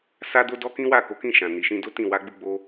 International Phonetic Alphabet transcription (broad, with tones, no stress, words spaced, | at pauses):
sa˦do˦dɔ˦ kĩ˦wa˦˨ko˨˦kĩ˦˨ ʃã˨ ni˨ʃĩ˧do˦tĩ˦˨ wa˧ɡ͡bu˧ɡ͡bo˧